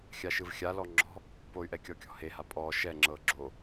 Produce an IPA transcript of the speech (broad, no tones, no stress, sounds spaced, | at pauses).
xʲ a ʃ ɯ v xʲ a l ɔ ŋ͡ǁ ɔ̤ | p o y̯ ʔ ɛ kʲ ɔ kʲ ɔ̤ h e h a pʼ ɔ ʃ ɛ ŋ͡ǁ ɤ ɡ͡ǁ o